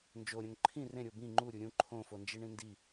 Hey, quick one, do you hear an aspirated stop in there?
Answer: yes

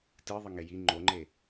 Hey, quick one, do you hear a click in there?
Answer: yes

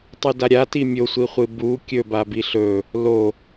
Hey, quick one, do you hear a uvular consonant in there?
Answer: yes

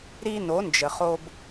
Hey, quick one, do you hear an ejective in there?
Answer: no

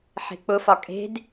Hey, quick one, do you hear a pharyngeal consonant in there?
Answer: yes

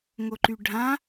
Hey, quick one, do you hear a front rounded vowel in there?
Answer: yes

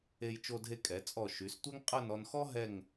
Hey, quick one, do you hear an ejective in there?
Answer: yes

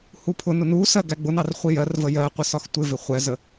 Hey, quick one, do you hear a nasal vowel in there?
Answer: no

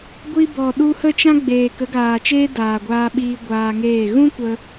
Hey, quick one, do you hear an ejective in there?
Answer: no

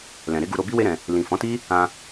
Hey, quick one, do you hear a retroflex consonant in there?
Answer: no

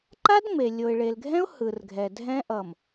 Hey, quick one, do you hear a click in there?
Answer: yes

